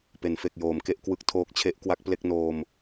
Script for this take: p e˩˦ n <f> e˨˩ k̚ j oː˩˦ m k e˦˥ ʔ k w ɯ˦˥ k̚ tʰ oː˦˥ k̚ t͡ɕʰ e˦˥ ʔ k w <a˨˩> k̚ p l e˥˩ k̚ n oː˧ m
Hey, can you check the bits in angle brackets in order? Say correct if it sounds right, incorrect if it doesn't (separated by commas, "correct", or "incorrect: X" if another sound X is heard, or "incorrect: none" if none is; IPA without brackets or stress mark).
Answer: correct, incorrect: a˦˥